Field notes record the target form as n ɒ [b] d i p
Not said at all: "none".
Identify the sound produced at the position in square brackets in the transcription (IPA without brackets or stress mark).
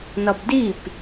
b